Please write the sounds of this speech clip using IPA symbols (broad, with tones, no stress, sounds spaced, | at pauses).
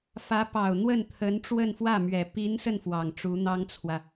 f ä˧˥ p ɑ˨˩ ʊ̯ n̪ w ə˥˩ n t̪ʰ ə˧˥ n ʈ͡ʂ w ə˥˧ n f w ä˥˩ m ɥ ɛ˨˩ p i˧˥ n s ə˧ n f w ɑ˨˩ ŋ ʈ͡ʂ u˧˥ n̪ ɑ˥ ŋ t͡sʰ w ä˨